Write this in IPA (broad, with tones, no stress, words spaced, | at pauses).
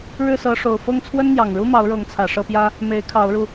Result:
ɻɻ̩˥˨sɤ˨˦ʂo˨˩ʊ̯ fɤ˥˨ŋt͡sʰwə˦nn̪jɑ˨˩ŋɻu˦ mɑ˨˦ʊ̯ɻɤ˨˦ŋt͡sʰä˨˩ ʂɤ˥˨pjä˦ | me˨˦ɪ̯kʰɑ˨˦ʊ̯ɻu˧